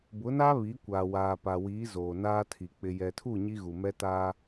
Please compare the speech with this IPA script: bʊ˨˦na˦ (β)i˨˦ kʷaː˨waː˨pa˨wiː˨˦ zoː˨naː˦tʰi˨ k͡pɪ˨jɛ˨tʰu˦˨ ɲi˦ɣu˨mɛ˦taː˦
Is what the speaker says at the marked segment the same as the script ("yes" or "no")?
yes